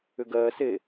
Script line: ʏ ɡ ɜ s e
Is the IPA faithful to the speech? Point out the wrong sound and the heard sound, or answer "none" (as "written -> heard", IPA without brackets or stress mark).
none